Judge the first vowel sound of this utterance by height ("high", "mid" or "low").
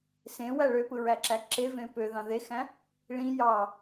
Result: mid